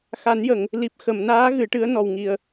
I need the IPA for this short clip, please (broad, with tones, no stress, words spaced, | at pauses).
xa˨˩˦njə˨˩˨ŋ | li˨˩p̚ xə˨˩˨mnaː˧˥ ɣɨ˨˩˦ʈɨ˧˥ə̯ nɔ˨˩wŋi˨˩ə̯